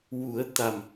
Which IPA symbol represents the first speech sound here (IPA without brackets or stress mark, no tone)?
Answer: w